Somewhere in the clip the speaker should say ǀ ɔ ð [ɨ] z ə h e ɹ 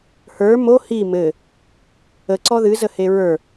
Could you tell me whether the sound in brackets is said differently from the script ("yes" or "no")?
no